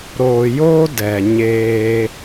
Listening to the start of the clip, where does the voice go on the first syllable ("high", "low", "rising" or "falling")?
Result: low